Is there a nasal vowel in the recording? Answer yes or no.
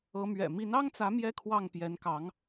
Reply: no